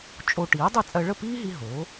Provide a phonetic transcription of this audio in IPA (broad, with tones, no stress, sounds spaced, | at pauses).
t͡ʃʼ o˧ ʈ iː˩˥ dˤ i˥˩ t͡sʼ ɜ˧ ɭ ə˥˩ p iː˥ ɦ i˧ ɦ oː˩˥